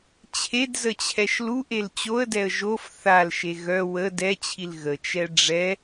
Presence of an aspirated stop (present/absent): present